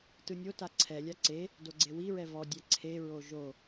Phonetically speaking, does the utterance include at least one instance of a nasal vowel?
no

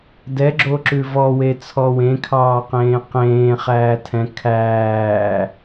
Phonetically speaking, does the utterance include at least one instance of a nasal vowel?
yes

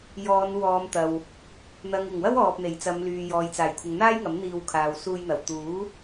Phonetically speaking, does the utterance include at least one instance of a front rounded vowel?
yes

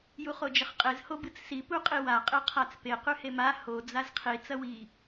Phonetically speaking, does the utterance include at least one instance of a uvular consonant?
yes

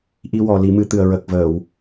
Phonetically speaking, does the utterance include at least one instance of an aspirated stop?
no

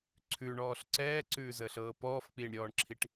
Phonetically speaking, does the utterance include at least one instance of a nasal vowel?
no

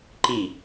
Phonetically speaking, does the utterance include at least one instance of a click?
yes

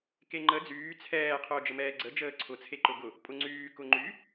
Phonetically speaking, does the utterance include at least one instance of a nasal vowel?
no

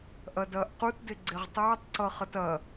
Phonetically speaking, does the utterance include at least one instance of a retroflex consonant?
no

